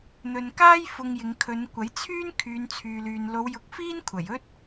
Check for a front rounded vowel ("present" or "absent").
present